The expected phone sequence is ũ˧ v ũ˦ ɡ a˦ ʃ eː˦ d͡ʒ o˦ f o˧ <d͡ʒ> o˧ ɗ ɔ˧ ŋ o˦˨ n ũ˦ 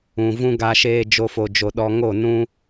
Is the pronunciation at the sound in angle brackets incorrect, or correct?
correct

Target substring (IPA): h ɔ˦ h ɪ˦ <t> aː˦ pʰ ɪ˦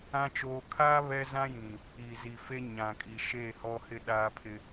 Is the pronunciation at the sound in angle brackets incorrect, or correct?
incorrect: ɗ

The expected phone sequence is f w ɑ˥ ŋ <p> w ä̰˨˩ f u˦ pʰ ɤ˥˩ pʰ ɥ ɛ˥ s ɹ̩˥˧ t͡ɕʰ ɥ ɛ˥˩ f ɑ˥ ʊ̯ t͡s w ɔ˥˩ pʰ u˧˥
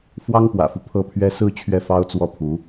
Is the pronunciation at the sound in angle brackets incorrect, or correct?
correct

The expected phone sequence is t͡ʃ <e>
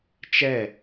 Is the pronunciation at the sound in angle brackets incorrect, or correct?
incorrect: ɛ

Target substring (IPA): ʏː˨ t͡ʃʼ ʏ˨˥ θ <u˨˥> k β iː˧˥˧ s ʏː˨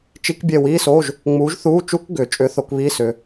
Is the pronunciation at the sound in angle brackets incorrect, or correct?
incorrect: o˨˥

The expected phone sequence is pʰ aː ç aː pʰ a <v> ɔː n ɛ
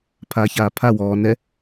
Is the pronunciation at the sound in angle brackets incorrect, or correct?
incorrect: w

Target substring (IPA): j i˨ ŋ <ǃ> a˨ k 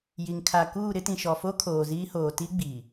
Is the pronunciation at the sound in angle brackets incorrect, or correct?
incorrect: kʰ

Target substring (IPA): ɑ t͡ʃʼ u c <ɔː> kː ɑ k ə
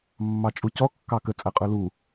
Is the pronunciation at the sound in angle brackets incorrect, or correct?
incorrect: ɔ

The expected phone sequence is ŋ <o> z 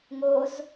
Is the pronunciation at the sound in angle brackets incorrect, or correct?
correct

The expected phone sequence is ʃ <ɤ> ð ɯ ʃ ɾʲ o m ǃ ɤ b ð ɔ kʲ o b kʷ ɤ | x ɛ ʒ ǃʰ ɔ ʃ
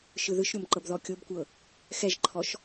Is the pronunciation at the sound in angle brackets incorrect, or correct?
incorrect: ɯ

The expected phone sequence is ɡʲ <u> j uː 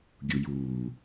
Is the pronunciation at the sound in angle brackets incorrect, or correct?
correct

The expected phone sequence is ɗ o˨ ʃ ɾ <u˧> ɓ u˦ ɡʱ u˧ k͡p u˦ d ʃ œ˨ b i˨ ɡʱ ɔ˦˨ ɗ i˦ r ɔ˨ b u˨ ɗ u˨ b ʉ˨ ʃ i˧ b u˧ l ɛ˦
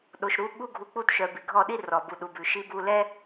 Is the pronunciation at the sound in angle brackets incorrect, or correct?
correct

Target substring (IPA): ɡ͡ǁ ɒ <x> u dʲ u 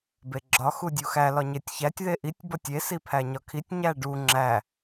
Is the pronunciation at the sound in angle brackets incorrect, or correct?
correct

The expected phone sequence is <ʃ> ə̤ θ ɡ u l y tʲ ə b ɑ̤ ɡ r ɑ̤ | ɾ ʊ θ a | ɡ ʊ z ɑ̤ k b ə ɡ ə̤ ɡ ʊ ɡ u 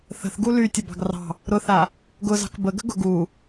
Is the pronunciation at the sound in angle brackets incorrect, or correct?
incorrect: θ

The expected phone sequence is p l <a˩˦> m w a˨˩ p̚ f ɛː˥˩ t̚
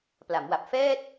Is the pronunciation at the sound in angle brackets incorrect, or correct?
correct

